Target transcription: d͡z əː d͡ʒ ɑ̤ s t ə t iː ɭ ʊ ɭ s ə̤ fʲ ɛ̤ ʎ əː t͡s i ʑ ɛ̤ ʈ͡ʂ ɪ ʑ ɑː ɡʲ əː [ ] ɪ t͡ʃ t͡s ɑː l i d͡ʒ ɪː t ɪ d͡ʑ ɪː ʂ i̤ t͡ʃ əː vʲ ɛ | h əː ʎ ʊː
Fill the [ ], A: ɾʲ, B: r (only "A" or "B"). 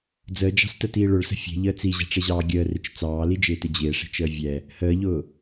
B